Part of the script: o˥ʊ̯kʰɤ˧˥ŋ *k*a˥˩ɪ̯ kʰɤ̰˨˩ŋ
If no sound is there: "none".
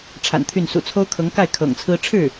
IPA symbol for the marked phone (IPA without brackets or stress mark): k